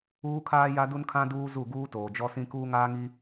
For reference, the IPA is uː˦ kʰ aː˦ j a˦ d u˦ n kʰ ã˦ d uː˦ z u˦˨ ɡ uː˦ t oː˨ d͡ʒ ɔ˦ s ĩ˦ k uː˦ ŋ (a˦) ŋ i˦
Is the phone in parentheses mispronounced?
yes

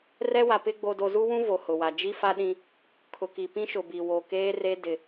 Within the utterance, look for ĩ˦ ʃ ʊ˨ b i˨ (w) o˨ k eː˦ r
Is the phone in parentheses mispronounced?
no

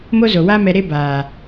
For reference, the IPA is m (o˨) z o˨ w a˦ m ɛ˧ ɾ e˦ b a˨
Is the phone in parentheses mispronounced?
yes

